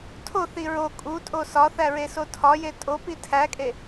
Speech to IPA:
tʰ o θ i ɹ o kʼ u tʼ o s ɒ θ æ ɹ e s o tʰ ɒ j e tʼ o p i tʰ æ kʼ e

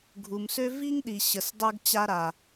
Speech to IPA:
ɡʱ u˨ m s ø˦ v i˦ ŋ ɗ i˨ ɕ ə˨ s dˤ œ˧ ɡ t͡ɕ a˧ ɾ a˨

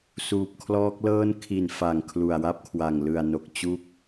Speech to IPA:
s uː˨˩ p̚ kʰ l ɔː˦˥ k̚ l ɤː˥˩ n kʰ i˨˩ n f a˨˩ ŋ kʰ l u˨˩ a̯ w a˥˩ p̚ kʰ w a˨˩ ŋ l ɯ˨˩ a̯ n o˨˩ k̚ t͡ɕ u˦˥ k̚

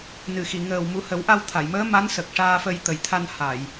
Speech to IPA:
n ɨ˨˩ x i˨˩˨ ŋ əː˨˩ w m u˨˩˦ h ə˨˩˦ w ʔ a˧ w t̪ʰ a˨˩˨ j m əː˧˥ m a˧˥ n s ə˨˩ k̚ ʂ aː˧ f ə˧ j t̪ ə˨˩ j t̪ʰ a˧ n h a˨˩˨ j

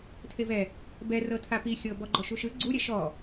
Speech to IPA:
tʰ e v ɛ | b ɛ r ɤ tʰ a p i xʲ ɤ b ɔ ɡ͡ǃ ɔ ʃ u ʃ ɯ ɡ͡ǀ u ɾʲ ɛ ʃ ɔ

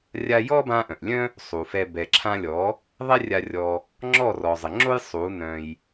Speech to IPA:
rʲ a˧ j ɔ˦ b ã˧ ʔ œ̃˨ ʔ lʲ œ̃˦ | sˤ u˨ f ɛ˧ b ɛ˨ ǁʰ ã˧ lʲ ɔ˨˦ | ðˤ ɛ˦ rʲ a˧ rʲ ɔ˧ | ŋ͡ǁ ɔ˦˨ r ɔ˨ zˤ ə˨ ŋ͡ǁ o˦ j sˤ u˨˦ n œ̃˧ j

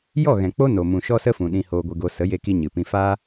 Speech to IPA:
j ɔ˦˨ ɣ ɛ̃˨ k͡p o˦ n o˨ m ũ˨ ʃ ɔ˦ s ə˦ f ũ˨ ɗ ĩ˧ h oː˧ ɡʷ e˧ ɡ o˧ s ə˨˦ j e˧ k i˧ ɲ ɨ˨ p ĩ˧ f aː˦

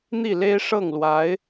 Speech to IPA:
n̪ i˥˩ l e˥ ɪ̯ ʂ ɤ˥˩ ŋ l w a˧˥ ɪ̯

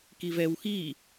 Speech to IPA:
k i v ɛ w x i

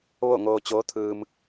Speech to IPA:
ʋ o˥˨ ŋ oː˧ t͡ɕ oː˧˥ t̪ʰ ɯː˧ m

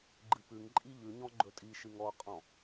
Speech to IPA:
ɡ͡ǃ ɨ p ʉ ŋ ǃʼ i ʎ ʉ ɲ ɔ̃ ɡ͡ǃ ɵ tʼ i ʃ ɨ ŋ ɔ qʼ ɔ̃

